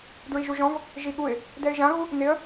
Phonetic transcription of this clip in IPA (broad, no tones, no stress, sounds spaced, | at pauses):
d ɹ i ʒ u ʒ ɔ̃ v | ʒ i ɠ u ɪ̯ | d ɛ ɪ̯ ʒ ã ɣ u | n ɪ ə̯